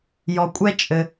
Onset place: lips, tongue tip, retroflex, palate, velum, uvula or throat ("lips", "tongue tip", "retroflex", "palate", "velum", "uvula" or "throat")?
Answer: palate